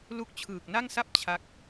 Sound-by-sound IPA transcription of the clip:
l u˦˥ k̚ t͡ɕʰ ɯː˨˩ k̚ n a˥˩ ŋ s a˥˩ p̚ t͡ɕʰ a˦˥ k̚

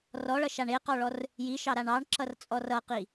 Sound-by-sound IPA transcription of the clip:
r ɔ ɭ ʌ ʃ a ɳ e q ɔ ɭ ɔ r | j i ʃ ɑ ɾ a ɳ ɑ ɳ ǁ ʌ r t͡sʼ ɔ r ʌ q i

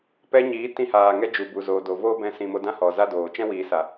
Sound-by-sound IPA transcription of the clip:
p ɛ˧ ɲ iː˨˦ t ĩ˧ h aː˨ ŋ ɛ˧ d͡ʒ u˨ b u˨ z oː˨ d o˨ v oː˦ b ɛ̃˧ s ĩ˨ m o˧ d ã˧ h ɔ˨ z a˦ d oː˨ t͡ʃ ɛ̃˦ w iː˨ s a˨

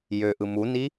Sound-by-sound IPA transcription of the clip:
j ø ʔ ɯ m u n i

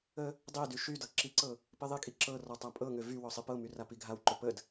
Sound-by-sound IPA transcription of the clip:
ə | dˤ i d y ʃ y d ɤ ǁ i ǀ ɤ | p i ðˤ i kʼ i ǁ ɤ r ɔ tˤ a pʼ ɤ ŋ ø v y w ɔ sˤ i p ɤ m y r a p i ɡʱ a w ǃ ø p ə d

